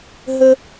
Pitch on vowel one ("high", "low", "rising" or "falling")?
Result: high